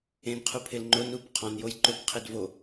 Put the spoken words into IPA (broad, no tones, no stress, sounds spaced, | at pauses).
ẽ n qʰ u pʰ ɪ l ŋ͡ǃ ʊ n u p qʰ ɔ̃ n j o j ǃ ʊ p qʰ e d v o